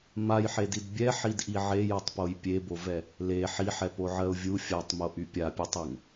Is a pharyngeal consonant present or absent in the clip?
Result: present